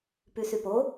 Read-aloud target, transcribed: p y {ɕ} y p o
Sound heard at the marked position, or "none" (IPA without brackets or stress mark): s